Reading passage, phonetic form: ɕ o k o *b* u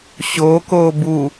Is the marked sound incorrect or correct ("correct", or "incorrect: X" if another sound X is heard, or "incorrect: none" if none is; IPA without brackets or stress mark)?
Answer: correct